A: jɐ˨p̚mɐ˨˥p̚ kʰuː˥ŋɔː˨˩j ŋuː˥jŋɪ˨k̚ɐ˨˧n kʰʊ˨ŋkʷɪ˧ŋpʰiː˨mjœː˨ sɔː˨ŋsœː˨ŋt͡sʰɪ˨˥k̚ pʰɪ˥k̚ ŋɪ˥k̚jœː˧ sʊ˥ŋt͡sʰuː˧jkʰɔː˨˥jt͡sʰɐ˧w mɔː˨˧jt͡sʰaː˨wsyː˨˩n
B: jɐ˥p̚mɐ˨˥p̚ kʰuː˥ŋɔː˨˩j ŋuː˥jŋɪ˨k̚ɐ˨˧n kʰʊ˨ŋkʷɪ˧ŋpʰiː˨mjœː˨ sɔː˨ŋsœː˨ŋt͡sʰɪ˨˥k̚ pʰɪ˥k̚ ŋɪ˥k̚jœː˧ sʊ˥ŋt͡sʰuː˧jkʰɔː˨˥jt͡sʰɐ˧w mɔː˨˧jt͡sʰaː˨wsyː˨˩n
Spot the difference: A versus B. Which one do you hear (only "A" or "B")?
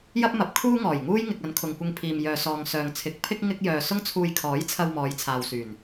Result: B